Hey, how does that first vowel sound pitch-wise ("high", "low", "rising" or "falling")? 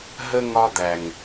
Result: high